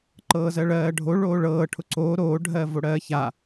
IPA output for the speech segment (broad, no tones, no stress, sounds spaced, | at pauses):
ǃ ɤː z ɜ ɭ ɜː ɖʱ o ɭ oː ɭ ɤː ʈʰ ʊ ǀ oː ɾ oː ɖʱ ɜː v o ɽ ɜː ç a